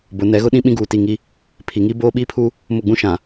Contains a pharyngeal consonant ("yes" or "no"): no